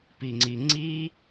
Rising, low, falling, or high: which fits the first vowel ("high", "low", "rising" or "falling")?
low